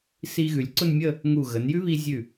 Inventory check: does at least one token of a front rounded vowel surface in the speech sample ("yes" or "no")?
no